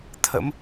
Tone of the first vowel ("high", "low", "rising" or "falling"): rising